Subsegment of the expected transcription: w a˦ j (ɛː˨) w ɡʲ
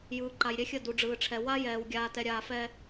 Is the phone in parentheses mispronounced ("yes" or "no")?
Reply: no